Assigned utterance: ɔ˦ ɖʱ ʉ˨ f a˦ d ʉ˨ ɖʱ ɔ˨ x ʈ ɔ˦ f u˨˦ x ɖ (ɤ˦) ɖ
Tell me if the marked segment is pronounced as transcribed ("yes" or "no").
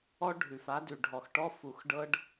yes